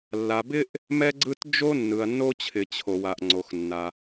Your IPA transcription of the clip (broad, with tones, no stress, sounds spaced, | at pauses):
lː a˩ b ɪ˥ ʔ | m ɛ˥ ɡ͡ǀ ɯ˥ t d͡ʒ o˥ nː ɯ˩ ɐ̯ nː o˥ t͡ɕʰ ɪ˩ t͡ɕʰ o˩ w a˩ ʔ ŋ͡ǀ o˩ x nː a˩